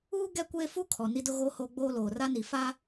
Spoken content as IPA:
uː˦ ɡ ɛ˦ kʷ eː˦ f u˦ kʰ ɔ˨ n i˦ d ʊ˦ ɣ oː˦ h oː˦ ɡ͡b oː˦ l oː˨ r a˦ n i˨ f a˦

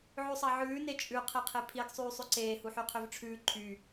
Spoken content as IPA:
ʕ ʉ sˤ ɑ ʕ ʉː n e t͡ʃʼ ʉ qʰ e qʰ e pʰ i ɡ sˤ yː sˤ ʉ ǀ eː h u ħ y qʰ ø v ʈ͡ʂʰ ʉː ǃʰ y

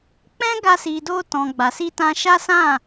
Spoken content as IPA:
k͡p ɛ̃˦ ɡ a˧ s i˨ d o˧ t ɔ̃˨ ɡ͡b a˨ s i˧ t ã˧ ʃ a˦ s ã˦˨

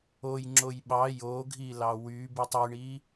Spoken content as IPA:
o j ŋ͡ǁ o j ɓ ɑ j o ɡʱ i l ɑ w y b i tˤ y ɳ i

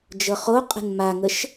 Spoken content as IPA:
d͡ʒ ɤ χ o qʼ ə̤ n m a ŋ ə ʃ

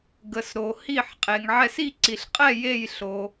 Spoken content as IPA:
ɡ ə˨ s ɾ o˨ h i˦˨ ħ qʼ e˨ ŋ ʕ ɛ˦˨ s i˦˨ ǀ i˨ ɬ qʼ ɛ˦˨ j e˦˨ j ɬ o˨

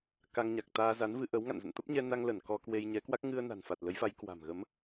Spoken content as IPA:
k a˧ ŋ ɲ a˨˩ k̚ t̪ aː˧ z a˨˦ n v ɨ˧ ʔ ə˨˦ w ŋ a̰˧˨ n z ə̰˧˨ n t̪ ə˦˥ p̚ ɲ ɛ˧ n a˧ ŋ l ə˧˩ n k ɔ˧ k w e˧ j ɲ ɛ˨˦ k w a˦˥ k̚ ŋ ɨ˧ ə̯ n a̤˨˩ n f a˨˩ t̚ l ə˨˦ j f a˨˦ j k w a̤˨˩ m ɣ ə˨˦ m

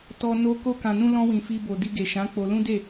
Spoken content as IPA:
t ɔ˧ n o˧ k o˧ k ã˨ n ũ˧ l ɔ̃˧ w ĩ˨ f i˧ b o˨ d i˧ ɡ e˨ ʃ ã˨˦ k͡p o˧ l ũ˦ d e˦˨

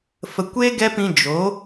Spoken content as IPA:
f ə˨ kʷ e˦ ɡ ɛ˦ p ĩ˧ d͡ʒ o˨˦

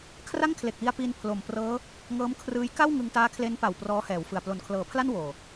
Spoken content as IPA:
kʰ r a˥˩ ŋ kʰ l e˨˩ k̚ w i˧ a̯ p i˧ n pʰ l o˨˩ m p r ɤː˦˥ | ŋ ɤː˦˥ m kʰ r ɯː˦˥ j k a˥˩ w ŋ ɯ˧ ŋ t aː˦˥ kʰ l e˦˥ n p a˨˩ w p r ɔː˦˥ h ɛː˩˦ w f ɯ˨˩ a̯ p l o˩˦ n kʰ l ɤː˩˦ pʰ l a˥˩ n w oː˨˩

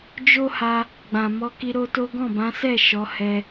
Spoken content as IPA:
d͡ʒ o˦ h a˧ | ɡ͡b ã˨ m ɔ˧ k i˧ ɾ o˦ t o˦ ɡ ɔ̃˦˨ b ã˨˦ s ɛ˦˨ ʃ ɔ˨˦ h ɛ˧

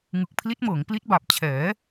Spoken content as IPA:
ŋ ɯ˨˩ k̚ pʰ l i˦˥ t̚ m ɤː˩˦ ŋ p l i˦˥ t̚ b a˨˩ p̚ t͡ɕʰ ɛː˩˦

